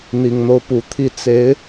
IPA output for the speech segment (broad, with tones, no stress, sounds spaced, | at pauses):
n̪ i˨˩ ŋ n̪ o˦ ʊ̯ p u˨˩ t̪ʰ i˥˩ t͡s e˧˥ ɪ̯